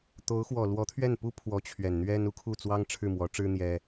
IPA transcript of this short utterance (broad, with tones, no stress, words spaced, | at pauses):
t̪o˧˥ʊ̯ xwɔ˨˩lwɔ˧˥ t̪ʰɥɛ˥˩npu˥ pʰwɔ˧˥t͡ɕʰɥɛ˨˩nn̪ɥɛ˥n u˧˥kʰu˥˩t͡swɑ˥ŋ ʈ͡ʂʰɻ̩˥˩mwɔ˧˥ʈ͡ʂɻ̩˥ n̪jɛ˥